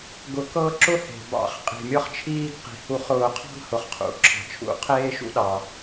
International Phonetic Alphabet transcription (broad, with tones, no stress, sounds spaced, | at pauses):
ɡ ʊ˨˩˦ k ɤ˦ ǁ ʊ˦ h e̤˩ b ɑ̰˨˩˦ χ qʼ i̤˩ mʲ ɤ˦ χ t͡ʃʰ iː˦ ɡ q i̤˩ h u˨˩˦ χ ʊː˨˩˦ qʰ ɑ̤˦ ɡ h ʊ˩ χ qʰ ṵ˩ ǁʰ ɑ̤˩ t͡ʃʰ ṵ˨˩˦ qʰ eː˦ ʃ ṵ˦ ɗ ɑ˩